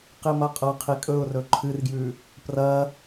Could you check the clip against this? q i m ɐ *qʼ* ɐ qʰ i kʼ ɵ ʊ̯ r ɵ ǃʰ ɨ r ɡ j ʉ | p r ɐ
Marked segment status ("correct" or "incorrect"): correct